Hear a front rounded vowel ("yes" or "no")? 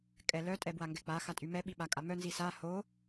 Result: yes